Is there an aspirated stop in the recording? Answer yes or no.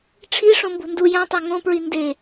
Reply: yes